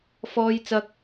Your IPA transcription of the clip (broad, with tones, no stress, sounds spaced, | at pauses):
f ɔː˥ j t͡s ɐ˥ k̚